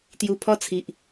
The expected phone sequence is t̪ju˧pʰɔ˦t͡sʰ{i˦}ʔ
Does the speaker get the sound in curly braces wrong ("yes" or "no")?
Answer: yes